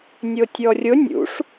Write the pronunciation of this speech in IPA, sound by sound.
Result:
nʲ o tʲ ɔ rʲ ʊ nʲ ṵ ʂ

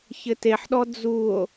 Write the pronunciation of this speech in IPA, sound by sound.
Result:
ç ɘ t e ħ ɗ ɔ d͡z u o̯

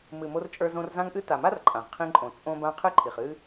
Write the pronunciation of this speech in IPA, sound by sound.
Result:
m ɨ˨ m o˧ r t͡ʃʼ ə˞˧ z õ˧ r z ã˦ ŋ ʔ ɨ˦ t a˨ m a˦ r ǃʼ ã˨ ʁ qʰ ĩ˧ ǃʼ õ˨ t͡sʼ õ˧ b ã˧ qʰ ɨ˦ ǃʰ i˨ χ ɨ˦

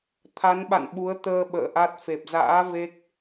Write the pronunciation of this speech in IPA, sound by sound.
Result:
t̪ʰ a˨˦ n ɓ a̰˧˨ n ɓ u˨˦ ə̯ t̪ əː˧ ɓ ə̰ː˧˨ ʔ a˦˥ t̚ f e˨˩ p̚ z a̰ː˧˥ v e˦˥ k̚

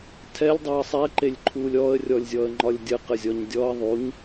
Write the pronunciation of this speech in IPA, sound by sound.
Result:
tʰ ɛ lʲ dˤ œ ə̯ sˤ ɛ ǃ e lʲ ǃʰ u lʲ ɔ ə̯ rʲ ɔ lʲ zʲ ɔ ə̯ ŋ͡ǃ ɒ lʲ dʲ ə q ə zʲ ɔ ɲ dʲ ɔ ə̯ ðˤ u ɲ

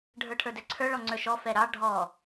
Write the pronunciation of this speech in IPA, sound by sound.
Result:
ɖʱ ə˞ ʈʰ ə˞ d ɛ ǀʰ ə˞ ɭ ɔ ŋ͡ǀ ə˞ ʃ ɔ f ɛ ɾ ɑ ɖʱ ɔ

